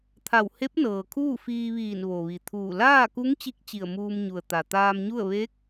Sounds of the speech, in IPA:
t̪ʰa˧˩whe˧˥p̚ nɤː˩kʰuː˥˨fiː˧ʋiː˧˩n ʋo˩ʋi˩t̪ʰuː˧˩ laː˥˨ku˧˥ŋ t͡ɕi˧˥k̚ t͡ɕi˧˩ə̯muː˧mɲu˩ə̯ t̪a˩t̪aː˧mɲu˥˨ə̯ ʋe˧˥k̚

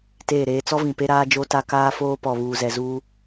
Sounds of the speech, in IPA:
teː˦˨ɾeː˦ t͡sɔ˦vĩ˨pe˦ ɾaː˦d͡ʒo˦ta˦ kaː˦foː˦ pɔ˨βuː˨zɛ˨ zuː˦

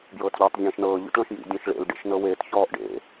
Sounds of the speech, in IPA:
bjɤːtʎɔːtˤzʲẽːʃnɤː ʎṵtɭɔ̃ʃjḭ dʲɔ̃ʃɭḛl ɖḛʃnɤweːt çɔːʔɖḛ

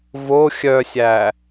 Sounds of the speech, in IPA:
vo xʲœsʲæː

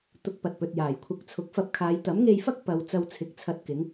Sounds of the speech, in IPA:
t̪ʊ˧k̚pɐ˨t̚pɵ˨t̚ jaː˨˩jkʷʰɐ˧k̚ t͡sʰʊ˨˥k̚fɐ˧p̚kʰaː˨˧j t̪ɐ˨˥mŋe˧jfɐ˥k̚ pɐ˨˧w t͡sɐ˧wt͡sʰɪ˨˥k̚t͡sʰɐ˧t̚ kɪ˨˥ŋ

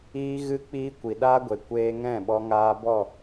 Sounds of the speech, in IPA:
iː˦ɣɨ˦k͡piː˦kʷi˨ ɗa˦ɡʷe˨ kʷeː˧ŋɛ̃˦˨ɓɔ˧ ŋaː˧bɔ˦˨

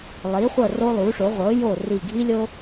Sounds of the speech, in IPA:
lˠi˩˧χʷɤ˧˩ ro˧lˠu˩˧ʂo˩˧ ʁʷɤ˩˧jo˧˩ ri˧˩ɡʱi˥lʲo˥

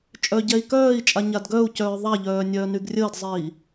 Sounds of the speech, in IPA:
t͡ʃʼœɟɛi̯kœːi̯t͡ʃʼa ɲadɡœu̯cœː ðˤaʎœː nʲœːnyɡrʲəːdzˤiː

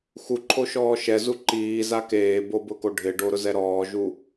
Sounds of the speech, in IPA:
xuǃʰoʃɔː ʃɛzu ǃiːza keːbobʊko ɖʱɪɖoɾʊzɛ ɾɔːʒu

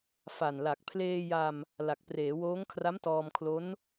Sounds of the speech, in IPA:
fa˨˩nla˨˩k̚ pʰleː˧ja˧m | la˨˩k̚preː˩˦woː˦˥ŋkʰra˦˥m tɔː˧mkʰlo˦˥n

